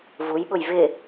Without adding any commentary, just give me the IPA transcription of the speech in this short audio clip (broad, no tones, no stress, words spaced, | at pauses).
vujɓʊj vɪ